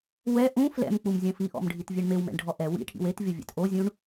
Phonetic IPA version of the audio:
w ɛ ʔ ũ f l ɛ̰ m k͡p u m zʲ ɐ̃ f i ʔ ɔ̰ m ɖʱ i t vʲ e ɳ m e w m ɛ̰ ɳ ɖʱ ɔ ʔ ɛ w ḭ ʈʰ ḭ w e t vʲ ɔ vʲ ɛ̰ t ʔ o zʲ ũ ɳ

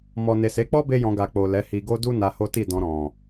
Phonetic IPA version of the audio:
m ɔ˨ n e˨ s e˨˦ k͡p ɔ˦ b e˦ j ɔ̃˧ ɡ a˨ k͡p o˨ l ɛ˨˦ h i˧ ɡ o˦ d u˦ n a˧ h o˦ t i˦˨ d ɔ̃˧ ɾ ɔ̃˨

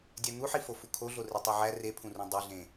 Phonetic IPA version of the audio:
dʲ æ n̪ u ħ i f o f u kʰ o ɮ o r e tˤ o ʕ æ r e pʰ ũ r ũ dˤ i ɮ ẽ

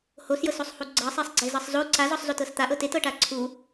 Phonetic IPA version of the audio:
h o s j ɤ s o sˤ h u ɡ͡ǀ ɤ sˤ e sˤ ɡ͡ǀ e z ɤ sˤ z o ǀ a z ɔ sˤ z o t ɤ s t̪ a ʔ ɤ t e t ɤ ʈ a ǀʰ u

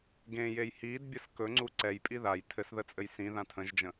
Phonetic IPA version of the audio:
ɡ ẽ j e j h i d bʲ ə s k ɵ ŋ͡ǀ u ǀ ɛ j pʼ i ð a j tʰ ɘ s ð ə t͡sʼ ɘ j s ĩ ð ã tʰ ə̃ ʒ d͡ʒ ə̃

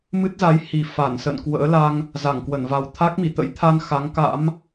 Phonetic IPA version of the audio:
m ɨ˦˥ t̚ z a˨˦ j h i˨˩ f a˧˩ n s ə̰˧˨ n k w ə̰ː˧˥ l a˧ ŋ | z a˧˩ ŋ k w ə˧˩ n v a˨˩ w t̪ʰ a˦˥ k̚ m i˧˩ t̪ ə̰˧˥ j t̪ʰ a˧ n x a˨˦ ŋ k a̰˧˥ m

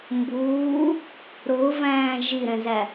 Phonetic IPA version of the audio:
m b uː | ɾ ʊː v æ̃ː ʒ i ɾ ɛ̃ z æ

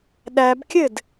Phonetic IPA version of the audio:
ɗ æ b kʲ ɘ d

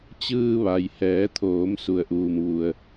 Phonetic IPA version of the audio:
t͡ɕ ɯː˧ ʋ a˩ j h ɛː˩˧ t̪ʰ oː˩˧ m s u˩ ə̯ ʔ uː˩ m ʋ u˩ ə̯

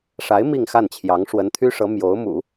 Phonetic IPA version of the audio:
ʂ a˧˥ ɪ̯ m i˥˧ ŋ x a˥˩ n t͡ɕʰ j ɑ˧˥ ŋ ʂ w ə˧˥ n t̪ʰ y˥ ʂ ɤ˧˥ m j o˧˥ ʊ̯ m ṵ˨˩˦

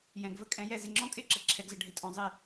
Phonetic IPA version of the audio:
j ɛ̃˩ ɡ v ə˥ kʼ ɛ̃˧ j ɛ˥˩ z ɪ˧ ŋ͡ǁ ɔ̃˥ kʼ ɪː˥ ǁ ə˩ ǁʰ ɛ˧ ɡ z ə˧ ɖʱ ɪ˩˥ tʼ ɔ̃˧ zˤ ɪː˥˩

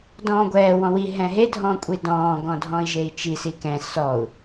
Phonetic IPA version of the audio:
d ɔ̃ː ɡʷ ɛː w ɔ̃ w i ɦ ɛ̃ ɦ e dʱ ɔ̃ kʷʼ i d ɔ̃ː ɡ ɔ̃ dʱ ɔ̃ i̯ ʒ e i̯ t͡ʃ i s i k ɛ̃ s ɔ u̯

